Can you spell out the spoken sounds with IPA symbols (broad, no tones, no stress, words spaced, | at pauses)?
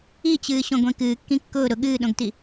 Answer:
it͡ɕɨːɕõɡʷẽ kɨːkːĩ kːʊː ɾʊ ɠɨːɗõɡti